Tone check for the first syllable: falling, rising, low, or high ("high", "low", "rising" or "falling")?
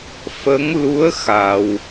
rising